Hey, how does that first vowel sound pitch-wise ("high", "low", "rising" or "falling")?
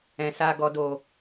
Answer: low